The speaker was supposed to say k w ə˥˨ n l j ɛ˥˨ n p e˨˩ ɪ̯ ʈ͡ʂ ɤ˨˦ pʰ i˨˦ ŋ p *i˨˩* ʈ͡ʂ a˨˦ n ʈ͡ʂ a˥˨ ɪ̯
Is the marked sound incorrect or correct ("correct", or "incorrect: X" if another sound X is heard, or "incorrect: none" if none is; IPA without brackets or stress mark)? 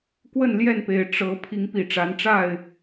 correct